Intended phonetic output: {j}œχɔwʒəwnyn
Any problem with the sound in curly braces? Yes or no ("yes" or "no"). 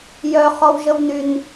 no